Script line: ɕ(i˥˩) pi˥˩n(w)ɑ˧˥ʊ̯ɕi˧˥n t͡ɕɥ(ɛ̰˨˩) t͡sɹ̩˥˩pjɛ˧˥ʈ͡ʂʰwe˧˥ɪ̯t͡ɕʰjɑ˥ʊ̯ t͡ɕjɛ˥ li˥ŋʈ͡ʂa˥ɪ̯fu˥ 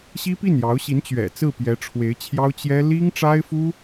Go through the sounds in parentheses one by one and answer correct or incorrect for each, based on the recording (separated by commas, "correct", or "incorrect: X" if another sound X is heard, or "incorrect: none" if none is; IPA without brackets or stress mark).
incorrect: i˥, incorrect: j, correct